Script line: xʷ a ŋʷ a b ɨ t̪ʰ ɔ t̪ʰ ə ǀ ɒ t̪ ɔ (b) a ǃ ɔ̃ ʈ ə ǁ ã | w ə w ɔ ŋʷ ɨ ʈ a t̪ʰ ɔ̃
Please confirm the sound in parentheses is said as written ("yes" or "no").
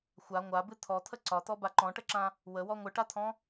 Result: yes